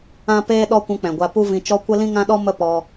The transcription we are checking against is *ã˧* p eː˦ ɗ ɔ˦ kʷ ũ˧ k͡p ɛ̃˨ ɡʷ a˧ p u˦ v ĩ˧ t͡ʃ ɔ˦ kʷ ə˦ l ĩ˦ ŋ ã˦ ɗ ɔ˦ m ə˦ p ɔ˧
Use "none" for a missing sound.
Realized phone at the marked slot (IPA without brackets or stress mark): ã˦